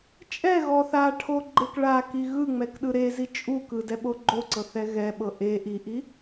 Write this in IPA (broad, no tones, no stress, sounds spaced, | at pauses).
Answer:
t͡ʃʼ ɛ ɣ ɔ θ a ʈʰ o ɡ͡ǃ e k ɭ a k i ɣ ɯ ŋ͡m ɛ k ɗ ɯ ɾ e z i t͡ʃʼ u k ɯ d ɛ ɓ o ɡ͡ǃ o ǀ ɤ θ ɛ ɣ ɛ ɓ ɤ ʔ e ʔ i ʔ i